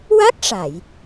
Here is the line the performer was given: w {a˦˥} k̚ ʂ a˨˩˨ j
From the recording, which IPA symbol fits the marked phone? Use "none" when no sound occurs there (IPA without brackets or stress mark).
a˦˥